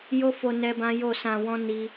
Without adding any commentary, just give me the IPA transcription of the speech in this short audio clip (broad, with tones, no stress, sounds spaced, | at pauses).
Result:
j o˦ f o˧ n ɛ˦ b ã˦ j o˦˨ s ã˧ w ɔ̃˦ n i˦